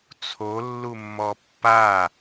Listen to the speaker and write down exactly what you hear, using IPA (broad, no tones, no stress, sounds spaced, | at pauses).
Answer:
t͡sʰ o lː u mː ɔ pː a